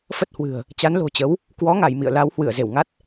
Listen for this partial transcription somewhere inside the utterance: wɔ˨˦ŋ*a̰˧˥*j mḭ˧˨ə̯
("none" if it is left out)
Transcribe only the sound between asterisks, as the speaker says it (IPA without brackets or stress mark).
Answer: a˧˩